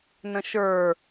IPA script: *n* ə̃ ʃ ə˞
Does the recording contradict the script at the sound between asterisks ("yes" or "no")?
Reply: no